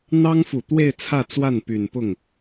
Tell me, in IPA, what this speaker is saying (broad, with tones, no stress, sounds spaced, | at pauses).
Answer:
n̪ ɑ˥ ŋ f u˨˩ t̪ w e˥˧ ɪ̯ t͡sʰ ä˥˧ t͡s w a˥˩ n p y˨˩ n p ʊ˥˩ ŋ